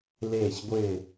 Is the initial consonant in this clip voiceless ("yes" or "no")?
no